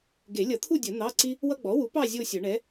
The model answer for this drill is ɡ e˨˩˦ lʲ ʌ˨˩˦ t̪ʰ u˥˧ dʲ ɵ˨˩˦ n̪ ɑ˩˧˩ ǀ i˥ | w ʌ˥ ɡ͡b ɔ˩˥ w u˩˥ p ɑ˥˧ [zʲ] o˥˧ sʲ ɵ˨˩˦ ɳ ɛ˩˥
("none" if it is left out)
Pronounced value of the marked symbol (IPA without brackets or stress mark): zʲ